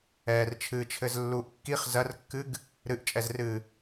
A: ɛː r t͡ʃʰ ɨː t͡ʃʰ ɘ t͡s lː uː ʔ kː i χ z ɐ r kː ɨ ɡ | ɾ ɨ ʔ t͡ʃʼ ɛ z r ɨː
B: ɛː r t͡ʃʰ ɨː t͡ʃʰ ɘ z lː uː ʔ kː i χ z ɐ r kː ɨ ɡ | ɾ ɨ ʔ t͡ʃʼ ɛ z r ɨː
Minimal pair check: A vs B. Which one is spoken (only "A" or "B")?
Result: B